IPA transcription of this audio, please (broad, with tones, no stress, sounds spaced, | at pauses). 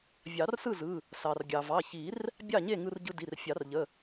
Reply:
vʲ ɑ˨˩˦ r s ɯ˥˨ z ɯ˩˧˩ | s ɑ˩ r ɡʲ ɑ˩ v ɑ˩˧˩ ç i˨˩˦ r | bʲ ɑ˥˨ ɲ e˥˨ ŋ ɯ˧ r ɟ ɯ˧ d i˩˧˩ r fʲ ɑ˨˩˦ r ʎ ə˩˧˩